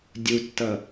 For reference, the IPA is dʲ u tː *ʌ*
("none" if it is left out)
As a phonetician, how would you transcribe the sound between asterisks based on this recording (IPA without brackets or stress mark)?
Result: ʌ